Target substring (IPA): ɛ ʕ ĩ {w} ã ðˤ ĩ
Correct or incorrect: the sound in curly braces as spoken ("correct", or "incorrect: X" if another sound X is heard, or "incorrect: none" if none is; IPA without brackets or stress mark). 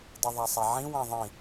correct